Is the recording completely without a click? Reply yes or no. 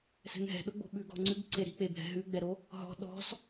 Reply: no